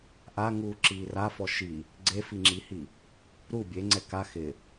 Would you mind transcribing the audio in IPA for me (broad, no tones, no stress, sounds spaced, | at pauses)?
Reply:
ʔ a ŋ uː ǁ iː r a f ɔ ʃ i | ɡ͡ǀ e f i ŋ͡ǁ i h i | ɾ u bʲ e ŋ͡ǀ ɛ k a x ɪ